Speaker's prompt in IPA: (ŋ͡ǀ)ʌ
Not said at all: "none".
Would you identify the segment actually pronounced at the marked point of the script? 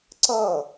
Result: ǀ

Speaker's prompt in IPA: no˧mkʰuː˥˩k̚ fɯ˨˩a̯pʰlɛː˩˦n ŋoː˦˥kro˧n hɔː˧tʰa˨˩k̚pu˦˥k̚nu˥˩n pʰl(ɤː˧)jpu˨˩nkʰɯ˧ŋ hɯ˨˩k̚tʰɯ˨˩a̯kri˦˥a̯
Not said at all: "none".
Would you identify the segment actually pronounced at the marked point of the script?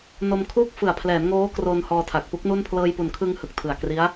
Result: ɤː˧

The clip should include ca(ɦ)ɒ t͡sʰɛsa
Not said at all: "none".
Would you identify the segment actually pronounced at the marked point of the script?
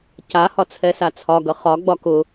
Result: h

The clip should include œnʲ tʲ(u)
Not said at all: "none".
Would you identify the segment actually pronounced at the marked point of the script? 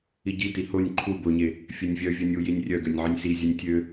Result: ø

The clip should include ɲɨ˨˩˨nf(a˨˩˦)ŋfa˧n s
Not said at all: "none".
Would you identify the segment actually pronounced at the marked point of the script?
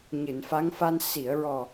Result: a˧˥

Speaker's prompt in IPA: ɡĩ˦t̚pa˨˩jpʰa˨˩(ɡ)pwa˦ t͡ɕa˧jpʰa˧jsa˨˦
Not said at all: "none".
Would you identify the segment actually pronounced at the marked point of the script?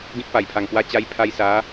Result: ŋ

